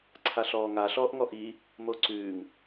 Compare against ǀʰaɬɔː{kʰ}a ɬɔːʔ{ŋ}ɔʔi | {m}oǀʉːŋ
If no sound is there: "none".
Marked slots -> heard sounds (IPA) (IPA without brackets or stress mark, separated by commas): ŋ, ŋ, m